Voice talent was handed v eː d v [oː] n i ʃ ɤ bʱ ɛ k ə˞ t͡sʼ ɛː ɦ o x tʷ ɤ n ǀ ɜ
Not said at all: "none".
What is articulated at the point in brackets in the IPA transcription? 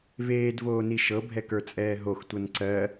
oː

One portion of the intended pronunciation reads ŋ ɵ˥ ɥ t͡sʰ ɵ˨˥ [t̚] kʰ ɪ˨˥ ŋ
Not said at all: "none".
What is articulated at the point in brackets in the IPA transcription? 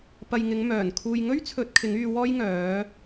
t̚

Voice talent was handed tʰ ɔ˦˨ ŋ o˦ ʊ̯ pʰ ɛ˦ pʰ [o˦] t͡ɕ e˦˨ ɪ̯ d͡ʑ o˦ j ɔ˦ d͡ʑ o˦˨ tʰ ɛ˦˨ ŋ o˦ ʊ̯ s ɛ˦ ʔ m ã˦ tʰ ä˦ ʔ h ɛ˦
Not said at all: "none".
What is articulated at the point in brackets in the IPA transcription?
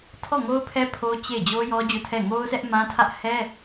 o˦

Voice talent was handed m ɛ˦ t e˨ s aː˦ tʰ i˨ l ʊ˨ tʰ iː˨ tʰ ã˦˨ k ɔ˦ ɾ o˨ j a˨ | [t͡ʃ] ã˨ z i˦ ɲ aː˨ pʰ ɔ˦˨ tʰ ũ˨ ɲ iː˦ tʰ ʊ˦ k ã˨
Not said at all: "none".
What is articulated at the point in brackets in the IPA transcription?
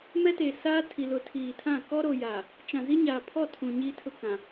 t͡ʃ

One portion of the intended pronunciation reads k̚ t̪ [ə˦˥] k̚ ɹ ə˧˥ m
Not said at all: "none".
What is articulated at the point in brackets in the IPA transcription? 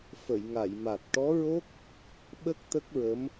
ə˦˥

